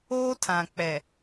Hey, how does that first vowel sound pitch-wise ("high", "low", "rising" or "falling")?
high